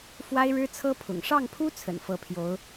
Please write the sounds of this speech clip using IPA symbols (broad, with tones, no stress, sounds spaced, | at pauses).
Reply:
f w a˥ ɪ̯ ɻ ɻ̩˥ t͡sʰ ɤ˥ pʰ ʊ̰˨˩ ŋ ʂ ɑ˥˩ ŋ pʰ u˥ t͡sʰ ə̰˨˩ n f ɤ˧˥ pʰ j o˧˥ ʊ̯